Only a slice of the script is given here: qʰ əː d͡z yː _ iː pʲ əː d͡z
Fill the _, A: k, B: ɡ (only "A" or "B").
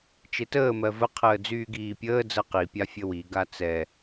B